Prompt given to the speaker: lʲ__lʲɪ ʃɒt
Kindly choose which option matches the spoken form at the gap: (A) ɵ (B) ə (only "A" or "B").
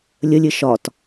B